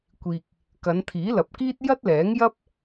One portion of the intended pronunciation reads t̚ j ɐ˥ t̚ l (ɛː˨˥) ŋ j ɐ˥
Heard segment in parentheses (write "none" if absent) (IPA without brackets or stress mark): ɛː˨˥